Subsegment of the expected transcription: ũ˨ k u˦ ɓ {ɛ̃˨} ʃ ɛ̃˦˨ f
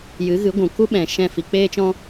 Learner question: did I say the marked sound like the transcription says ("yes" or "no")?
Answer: yes